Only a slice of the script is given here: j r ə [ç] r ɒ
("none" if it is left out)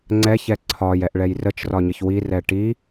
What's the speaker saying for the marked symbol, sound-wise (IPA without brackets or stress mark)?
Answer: t͡ʃ